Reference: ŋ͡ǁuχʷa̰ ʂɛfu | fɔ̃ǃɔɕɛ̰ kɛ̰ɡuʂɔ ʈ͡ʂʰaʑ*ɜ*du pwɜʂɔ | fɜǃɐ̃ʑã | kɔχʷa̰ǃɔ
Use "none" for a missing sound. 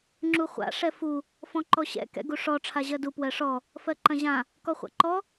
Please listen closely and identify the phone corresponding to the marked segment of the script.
ɜ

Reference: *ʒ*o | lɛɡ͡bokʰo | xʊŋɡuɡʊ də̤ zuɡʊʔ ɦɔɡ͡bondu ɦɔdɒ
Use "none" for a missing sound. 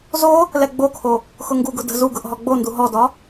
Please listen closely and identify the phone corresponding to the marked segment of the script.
z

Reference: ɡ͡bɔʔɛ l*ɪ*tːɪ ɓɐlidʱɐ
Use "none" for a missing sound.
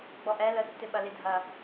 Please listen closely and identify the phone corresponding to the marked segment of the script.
ə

